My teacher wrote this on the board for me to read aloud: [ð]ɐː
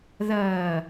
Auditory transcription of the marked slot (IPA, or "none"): ð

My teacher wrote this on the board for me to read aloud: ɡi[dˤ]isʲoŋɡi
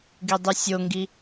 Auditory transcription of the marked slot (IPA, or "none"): dˤ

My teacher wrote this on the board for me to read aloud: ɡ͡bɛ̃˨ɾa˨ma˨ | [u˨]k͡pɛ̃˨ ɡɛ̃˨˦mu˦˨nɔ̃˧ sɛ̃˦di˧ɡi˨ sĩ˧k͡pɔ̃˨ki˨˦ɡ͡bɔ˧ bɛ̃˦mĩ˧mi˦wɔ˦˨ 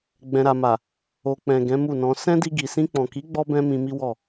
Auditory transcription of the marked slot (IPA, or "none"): o˨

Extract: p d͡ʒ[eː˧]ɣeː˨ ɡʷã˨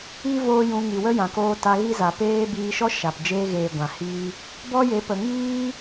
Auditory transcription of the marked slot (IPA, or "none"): eː˧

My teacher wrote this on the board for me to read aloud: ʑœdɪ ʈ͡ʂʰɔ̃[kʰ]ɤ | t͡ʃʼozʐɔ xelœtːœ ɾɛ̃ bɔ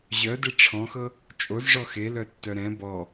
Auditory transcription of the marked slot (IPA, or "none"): x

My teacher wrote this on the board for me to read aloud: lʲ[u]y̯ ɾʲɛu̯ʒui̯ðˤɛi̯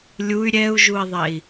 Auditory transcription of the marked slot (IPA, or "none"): u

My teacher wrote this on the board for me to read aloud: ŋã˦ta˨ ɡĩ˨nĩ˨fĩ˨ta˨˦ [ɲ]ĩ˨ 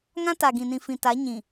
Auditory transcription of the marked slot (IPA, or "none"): ɲ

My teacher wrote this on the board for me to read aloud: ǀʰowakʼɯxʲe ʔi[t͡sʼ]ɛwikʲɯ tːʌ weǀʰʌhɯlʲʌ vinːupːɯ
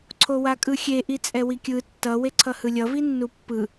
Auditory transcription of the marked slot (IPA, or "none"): t͡sʼ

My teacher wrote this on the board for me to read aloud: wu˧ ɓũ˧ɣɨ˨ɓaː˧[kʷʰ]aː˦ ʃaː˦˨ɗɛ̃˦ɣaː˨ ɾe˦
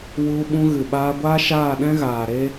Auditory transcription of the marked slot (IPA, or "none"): ɡʷ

